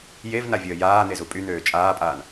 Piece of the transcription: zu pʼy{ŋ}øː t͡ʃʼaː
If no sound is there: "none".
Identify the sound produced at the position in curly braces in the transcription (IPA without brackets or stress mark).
n̪